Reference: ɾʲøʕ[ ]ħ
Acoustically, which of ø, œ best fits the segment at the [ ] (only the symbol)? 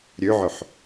œ